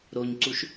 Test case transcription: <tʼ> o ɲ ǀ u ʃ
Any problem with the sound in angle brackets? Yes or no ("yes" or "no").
yes